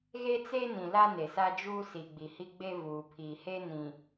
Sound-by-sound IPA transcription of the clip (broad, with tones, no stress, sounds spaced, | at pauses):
ɣ e˦ t͡s e˦ n ĩ˨ l a˦ n e˨ s a˦ d͡ʒ uː˦ s i˨ ɡ͡b i˨ h i˦ ɡ͡b e˦ v uː˨ pʰ iː˨ h e˦ n ĩ˨